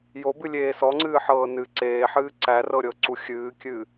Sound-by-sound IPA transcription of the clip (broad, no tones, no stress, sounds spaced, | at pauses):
j o b ɨ lʲ eː s ɔ ŋ͡ǀ ɨː ħ ɤː n ɨ ǀ eː ħ ɨː ǀ æ r ɤ ɾʲ ɤ ǀ u xʲ ɨː kʲ ɨ